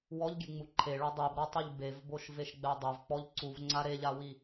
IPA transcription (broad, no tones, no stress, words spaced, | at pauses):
wɔʎɡʲeŋ͡mu ǃʰeɭɔ dˤebɾɔtˤuʎ bevboʃveʃɡ͡bɛ dˤovk͡pɔʎ ǀuvŋ͡ǀa ɾeʎawi